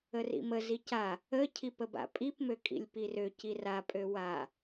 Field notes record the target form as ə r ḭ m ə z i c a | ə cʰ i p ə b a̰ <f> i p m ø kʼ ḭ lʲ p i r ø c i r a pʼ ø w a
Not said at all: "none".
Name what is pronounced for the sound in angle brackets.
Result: pʼ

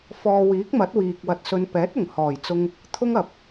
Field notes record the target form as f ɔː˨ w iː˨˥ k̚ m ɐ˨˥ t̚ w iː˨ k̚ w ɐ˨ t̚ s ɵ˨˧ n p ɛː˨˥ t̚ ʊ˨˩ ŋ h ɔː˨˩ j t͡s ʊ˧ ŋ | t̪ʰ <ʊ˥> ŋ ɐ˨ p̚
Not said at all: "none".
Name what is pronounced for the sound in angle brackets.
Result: ʊ˥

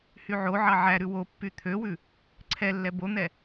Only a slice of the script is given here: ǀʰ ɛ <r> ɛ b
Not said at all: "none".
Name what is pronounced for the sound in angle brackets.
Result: lː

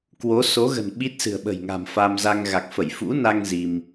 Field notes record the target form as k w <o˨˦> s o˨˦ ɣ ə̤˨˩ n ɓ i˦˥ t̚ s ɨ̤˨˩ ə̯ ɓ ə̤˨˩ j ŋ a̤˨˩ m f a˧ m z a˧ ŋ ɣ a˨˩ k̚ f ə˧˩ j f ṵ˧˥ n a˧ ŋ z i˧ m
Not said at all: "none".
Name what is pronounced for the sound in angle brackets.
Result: o˨˦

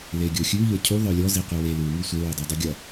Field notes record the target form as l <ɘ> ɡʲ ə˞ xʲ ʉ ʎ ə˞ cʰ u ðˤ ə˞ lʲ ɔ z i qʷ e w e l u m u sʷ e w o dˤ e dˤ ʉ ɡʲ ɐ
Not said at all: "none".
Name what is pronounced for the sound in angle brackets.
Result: e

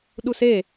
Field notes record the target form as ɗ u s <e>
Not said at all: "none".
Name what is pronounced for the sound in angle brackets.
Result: e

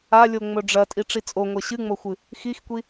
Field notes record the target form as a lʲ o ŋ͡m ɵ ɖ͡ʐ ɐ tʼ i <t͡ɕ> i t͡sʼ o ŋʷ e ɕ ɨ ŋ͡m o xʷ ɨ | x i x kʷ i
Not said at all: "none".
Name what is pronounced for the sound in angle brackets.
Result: ʈ͡ʂ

